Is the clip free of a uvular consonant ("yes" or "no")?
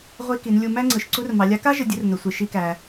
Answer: no